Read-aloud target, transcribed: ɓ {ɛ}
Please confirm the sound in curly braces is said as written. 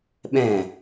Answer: no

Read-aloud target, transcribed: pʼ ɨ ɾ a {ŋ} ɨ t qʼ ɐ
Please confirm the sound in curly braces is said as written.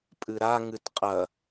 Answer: yes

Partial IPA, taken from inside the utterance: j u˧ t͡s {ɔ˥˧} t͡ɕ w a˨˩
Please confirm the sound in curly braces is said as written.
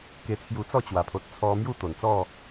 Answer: yes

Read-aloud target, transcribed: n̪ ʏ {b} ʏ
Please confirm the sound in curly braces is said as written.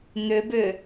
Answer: yes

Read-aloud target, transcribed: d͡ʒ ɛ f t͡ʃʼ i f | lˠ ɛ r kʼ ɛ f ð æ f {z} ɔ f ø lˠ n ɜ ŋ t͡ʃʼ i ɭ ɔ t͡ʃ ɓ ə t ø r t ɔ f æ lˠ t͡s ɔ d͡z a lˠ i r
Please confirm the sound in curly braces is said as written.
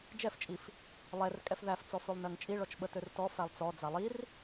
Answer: no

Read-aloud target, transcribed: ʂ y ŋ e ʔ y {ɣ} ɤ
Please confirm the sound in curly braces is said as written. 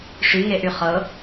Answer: no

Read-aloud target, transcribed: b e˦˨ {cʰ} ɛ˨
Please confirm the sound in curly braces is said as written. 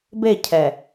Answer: yes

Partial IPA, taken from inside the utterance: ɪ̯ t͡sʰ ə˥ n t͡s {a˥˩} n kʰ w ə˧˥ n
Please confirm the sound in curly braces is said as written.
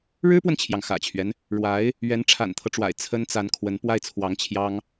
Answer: no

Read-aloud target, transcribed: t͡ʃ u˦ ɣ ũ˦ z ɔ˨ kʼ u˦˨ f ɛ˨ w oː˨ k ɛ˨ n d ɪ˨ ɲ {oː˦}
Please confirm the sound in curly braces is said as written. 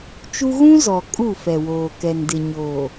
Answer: no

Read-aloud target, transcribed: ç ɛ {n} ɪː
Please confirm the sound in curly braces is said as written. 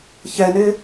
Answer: yes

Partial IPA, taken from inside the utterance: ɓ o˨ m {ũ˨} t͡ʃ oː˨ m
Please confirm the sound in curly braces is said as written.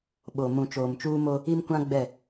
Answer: yes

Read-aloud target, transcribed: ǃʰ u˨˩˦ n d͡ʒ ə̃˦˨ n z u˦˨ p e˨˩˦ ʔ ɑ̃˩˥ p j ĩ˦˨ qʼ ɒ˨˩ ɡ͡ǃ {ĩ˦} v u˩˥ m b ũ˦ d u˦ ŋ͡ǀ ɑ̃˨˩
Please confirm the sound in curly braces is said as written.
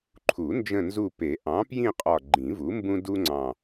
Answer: no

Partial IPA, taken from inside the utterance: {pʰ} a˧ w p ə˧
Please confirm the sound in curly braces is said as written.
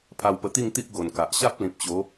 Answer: yes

